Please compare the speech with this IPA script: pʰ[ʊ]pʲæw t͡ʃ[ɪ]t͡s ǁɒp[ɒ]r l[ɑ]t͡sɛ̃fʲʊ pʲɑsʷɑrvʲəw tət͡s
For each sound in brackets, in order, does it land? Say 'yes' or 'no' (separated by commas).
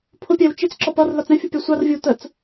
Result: yes, yes, no, no